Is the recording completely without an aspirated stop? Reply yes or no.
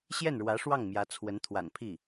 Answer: no